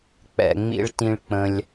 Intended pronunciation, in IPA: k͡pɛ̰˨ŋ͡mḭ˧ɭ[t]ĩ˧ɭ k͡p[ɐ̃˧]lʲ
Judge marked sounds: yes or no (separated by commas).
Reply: yes, no